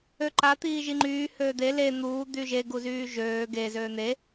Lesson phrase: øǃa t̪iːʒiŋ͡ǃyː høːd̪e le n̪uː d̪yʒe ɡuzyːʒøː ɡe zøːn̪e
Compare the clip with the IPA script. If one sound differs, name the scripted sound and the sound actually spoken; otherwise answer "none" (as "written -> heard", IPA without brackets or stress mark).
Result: none